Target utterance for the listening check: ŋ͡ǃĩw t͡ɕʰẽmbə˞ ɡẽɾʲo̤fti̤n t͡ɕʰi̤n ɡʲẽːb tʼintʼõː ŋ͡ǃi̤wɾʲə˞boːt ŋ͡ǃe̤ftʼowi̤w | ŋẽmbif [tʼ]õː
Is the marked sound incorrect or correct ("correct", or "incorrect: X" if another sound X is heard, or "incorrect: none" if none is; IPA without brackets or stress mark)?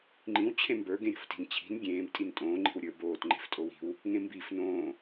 incorrect: n